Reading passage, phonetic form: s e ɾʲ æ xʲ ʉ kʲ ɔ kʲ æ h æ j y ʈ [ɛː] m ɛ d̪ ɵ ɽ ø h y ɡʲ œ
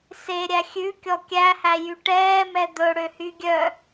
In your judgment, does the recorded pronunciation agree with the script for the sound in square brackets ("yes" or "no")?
yes